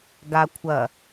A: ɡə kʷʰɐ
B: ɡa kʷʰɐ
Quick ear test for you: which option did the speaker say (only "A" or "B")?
B